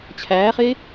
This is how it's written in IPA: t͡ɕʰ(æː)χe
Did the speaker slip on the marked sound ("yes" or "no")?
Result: no